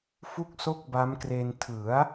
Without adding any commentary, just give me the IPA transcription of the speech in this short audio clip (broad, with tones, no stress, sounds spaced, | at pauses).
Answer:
f u˥˩ k̚ s o˥˩ k̚ b a˦˥ m k r e˧ n tʰ ɯ˩˦ a̯